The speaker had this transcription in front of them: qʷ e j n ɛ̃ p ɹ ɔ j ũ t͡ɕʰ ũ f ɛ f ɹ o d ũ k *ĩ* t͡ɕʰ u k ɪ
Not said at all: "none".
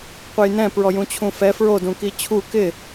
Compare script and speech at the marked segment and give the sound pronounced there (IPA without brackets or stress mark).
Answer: i